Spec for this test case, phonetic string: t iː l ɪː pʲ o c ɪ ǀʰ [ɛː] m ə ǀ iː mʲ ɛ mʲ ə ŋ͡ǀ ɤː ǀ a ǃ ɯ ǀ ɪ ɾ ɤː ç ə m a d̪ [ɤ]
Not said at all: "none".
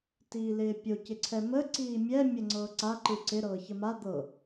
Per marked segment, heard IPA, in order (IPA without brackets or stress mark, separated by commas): ɛ, ɤ